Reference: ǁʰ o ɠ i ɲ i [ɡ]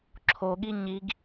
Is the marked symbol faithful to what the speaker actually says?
yes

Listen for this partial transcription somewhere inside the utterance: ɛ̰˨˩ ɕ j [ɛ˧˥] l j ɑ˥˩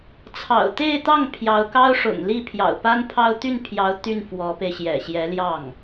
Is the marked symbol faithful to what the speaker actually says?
yes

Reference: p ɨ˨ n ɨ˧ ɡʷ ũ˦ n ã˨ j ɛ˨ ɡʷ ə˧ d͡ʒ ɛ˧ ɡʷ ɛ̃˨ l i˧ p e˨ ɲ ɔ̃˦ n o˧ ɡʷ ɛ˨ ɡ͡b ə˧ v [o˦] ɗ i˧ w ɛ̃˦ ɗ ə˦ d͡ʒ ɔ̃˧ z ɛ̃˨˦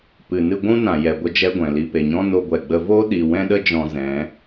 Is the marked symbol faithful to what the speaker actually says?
yes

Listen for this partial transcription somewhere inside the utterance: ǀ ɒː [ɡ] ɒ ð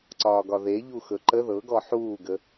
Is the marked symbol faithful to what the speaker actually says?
yes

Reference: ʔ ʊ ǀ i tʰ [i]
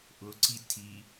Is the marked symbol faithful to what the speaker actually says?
yes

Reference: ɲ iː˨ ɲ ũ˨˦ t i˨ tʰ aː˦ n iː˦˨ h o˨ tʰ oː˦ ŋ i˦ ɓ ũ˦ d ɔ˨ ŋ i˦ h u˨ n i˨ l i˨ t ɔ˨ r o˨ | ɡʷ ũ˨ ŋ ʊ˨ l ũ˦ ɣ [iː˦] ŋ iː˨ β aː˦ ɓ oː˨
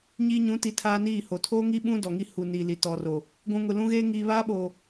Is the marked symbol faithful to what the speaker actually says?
no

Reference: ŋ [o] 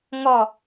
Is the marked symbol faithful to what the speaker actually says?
no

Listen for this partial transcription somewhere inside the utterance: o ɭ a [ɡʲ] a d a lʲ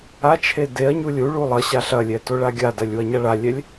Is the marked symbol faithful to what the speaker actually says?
yes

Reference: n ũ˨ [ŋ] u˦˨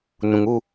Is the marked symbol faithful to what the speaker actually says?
yes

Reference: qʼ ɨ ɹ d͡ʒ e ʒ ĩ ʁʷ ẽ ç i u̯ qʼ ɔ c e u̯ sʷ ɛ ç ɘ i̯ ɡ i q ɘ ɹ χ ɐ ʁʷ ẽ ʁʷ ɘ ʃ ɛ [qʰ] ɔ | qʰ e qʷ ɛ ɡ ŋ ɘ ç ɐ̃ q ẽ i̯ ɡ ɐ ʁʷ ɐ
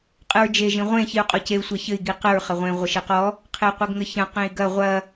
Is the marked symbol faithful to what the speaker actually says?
no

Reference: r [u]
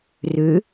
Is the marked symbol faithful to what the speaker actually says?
no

